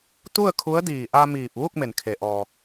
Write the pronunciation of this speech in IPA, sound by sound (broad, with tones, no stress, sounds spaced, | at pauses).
t̪ u˥˨ ə̯ kʰ u˧˥ ə̯ d iː˧˩ ʔ a˧ m iː˧˩ p̚ ʋ u˥˨ k̚ m e˩ n kʰ e˩ ʔ ɔː˩